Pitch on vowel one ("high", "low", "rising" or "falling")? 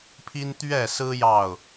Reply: high